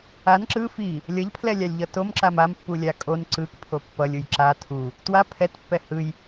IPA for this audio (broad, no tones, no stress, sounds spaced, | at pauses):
a n ǁ ɯ f i | lʲ ʌ ʎ pʰ l ɛ lʲ a lʲ ʎ ʌ t o m ǁ a m a m pː u lʲ a kʼ o n ǀ ɯ k pʰ o pː ʌ lʲ u j ǁ a tʰ u | t w a pʰ ɛ t pː ɛ h ɯ j